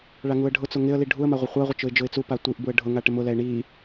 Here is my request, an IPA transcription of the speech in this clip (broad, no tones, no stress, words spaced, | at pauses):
ɭaŋuə̯ɖʱʊt͡sʊ ŋɪə̯li ɖʱuə̯ma ʁʷɪχʷaʁʷɪ t͡ʃʊɪ̯d͡ʒʊɪ̯t͡supa tʷiʔbuə̯ ɖʱʊŋa ʈɪmʊlɛɪ̯ ɳi